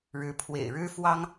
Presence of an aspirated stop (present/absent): present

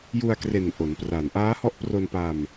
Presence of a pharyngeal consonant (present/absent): absent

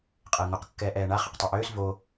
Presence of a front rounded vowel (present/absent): present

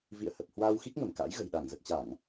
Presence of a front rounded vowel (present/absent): absent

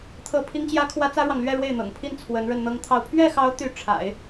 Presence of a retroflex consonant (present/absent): present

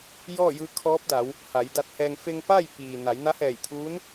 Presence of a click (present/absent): absent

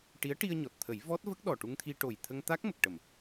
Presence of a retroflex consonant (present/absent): present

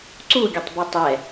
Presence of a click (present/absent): present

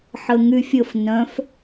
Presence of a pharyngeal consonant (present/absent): present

